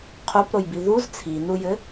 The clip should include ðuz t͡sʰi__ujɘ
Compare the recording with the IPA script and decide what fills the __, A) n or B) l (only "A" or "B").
A